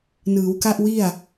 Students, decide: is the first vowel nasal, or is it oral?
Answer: oral